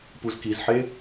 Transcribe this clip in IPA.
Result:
puzkizħe

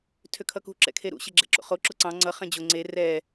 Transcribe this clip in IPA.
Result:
tʰøkʰʌkṳ ǁɛ̰kʰeɾṵ ɕeɡ͡ǁɛ̰ǁo̰χo ǁʊǀɑ̃ ŋ͡ǀʌ χɛ̃d͡ʑʊ ŋ͡ǀe rɛ

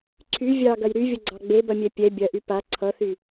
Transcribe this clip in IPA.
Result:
ǀʰy vʲɑɡɐj ɾyvʲʌɡ͡ǀɑ ɡ͡bebɐmʲɛ pʲɛ bʲɐʔy pa ǀʰʌθy

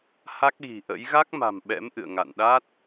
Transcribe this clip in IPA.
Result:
ha˦˥k̚ɣi̤˨˩ʔə̰˧˥j ɣa˦˥k̚ma̤˨˩m ɓɛ̰˧˥mʔɨ̰˧˨ə̯ ŋa̰˧˨nɗa˦˥t̚

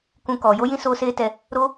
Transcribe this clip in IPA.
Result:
kũ˦kɔ˨˦ jo˦jĩ˦ soː˦seː˦tɛ˧ | ɾo˦

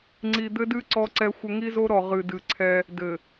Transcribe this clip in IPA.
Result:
ŋ͡ǀi˨d̪ɘ˦dɨ˦ ǀɔ˦ǀɛ˦xʷɘ˦ ŋi˦zo˦ɾɔ˨ ʁɨ˨dɨ˨ǀʰɛ˦ | dɘ˨

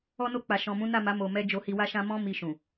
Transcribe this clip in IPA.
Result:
ɔ˧no˧k͡pa˨ ʃɔ̃˨mũ˨˦na˦˨ma˨˦ mo˧mɛ˦ d͡ʒo˧hi˧wa˦ʃã˦ mɔ̃˦ mi˧ʃũ˨

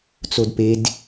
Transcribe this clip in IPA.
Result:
t͡sodped

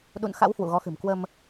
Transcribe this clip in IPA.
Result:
ɗṵ˧˨n xa̰˧˥whwṵ˧˨ ɣɔ˨˦xɨ̤˨˩m kwə˧m

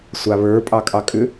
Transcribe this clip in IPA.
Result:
sʷaβə˞ pʼɑkʼɑkʼʏ

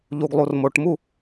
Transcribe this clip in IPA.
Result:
ʎuɡlˠurmoʈmu

